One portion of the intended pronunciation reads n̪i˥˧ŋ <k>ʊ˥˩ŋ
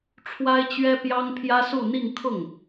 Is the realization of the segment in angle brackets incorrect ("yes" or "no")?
yes